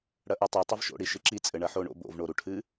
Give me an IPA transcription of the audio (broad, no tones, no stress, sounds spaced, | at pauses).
ɽ ɐ ʔ u tˤ u tˤ ɐ v ʃ o̰ ɽ i ʃ ɨ ǁ i t͡sʼ ɘ ɳ ɐ ħ o ɳ o̰ b o̰ v ɳ o ɾ u ʈʰ ɨ